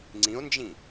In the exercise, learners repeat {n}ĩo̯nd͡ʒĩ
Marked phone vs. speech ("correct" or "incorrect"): incorrect